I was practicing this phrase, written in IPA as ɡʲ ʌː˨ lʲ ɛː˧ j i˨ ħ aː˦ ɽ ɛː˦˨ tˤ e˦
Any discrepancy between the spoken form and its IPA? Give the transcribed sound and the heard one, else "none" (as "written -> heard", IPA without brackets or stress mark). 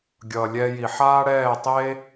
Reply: none